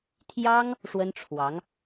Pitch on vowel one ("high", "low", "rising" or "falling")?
high